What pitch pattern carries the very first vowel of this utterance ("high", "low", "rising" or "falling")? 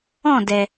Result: falling